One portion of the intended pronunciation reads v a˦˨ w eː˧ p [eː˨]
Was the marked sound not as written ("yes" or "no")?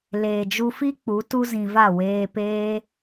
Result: yes